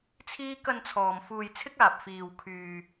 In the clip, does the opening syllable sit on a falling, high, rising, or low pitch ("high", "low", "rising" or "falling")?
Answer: high